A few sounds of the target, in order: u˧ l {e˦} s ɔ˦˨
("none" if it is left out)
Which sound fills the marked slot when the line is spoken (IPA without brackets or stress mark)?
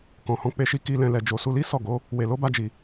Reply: i˦